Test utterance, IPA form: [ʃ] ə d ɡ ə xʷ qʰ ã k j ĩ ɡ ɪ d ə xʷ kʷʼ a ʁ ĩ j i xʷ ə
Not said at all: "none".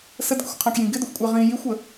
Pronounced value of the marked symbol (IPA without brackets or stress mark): s